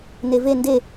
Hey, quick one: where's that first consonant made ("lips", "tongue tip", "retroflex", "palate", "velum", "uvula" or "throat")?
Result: tongue tip